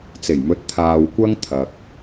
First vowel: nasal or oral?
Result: oral